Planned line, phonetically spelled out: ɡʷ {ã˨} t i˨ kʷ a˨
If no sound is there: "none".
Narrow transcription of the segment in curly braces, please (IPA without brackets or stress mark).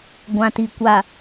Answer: ã˨